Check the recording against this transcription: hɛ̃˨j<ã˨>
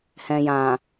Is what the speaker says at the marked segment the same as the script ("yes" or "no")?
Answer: yes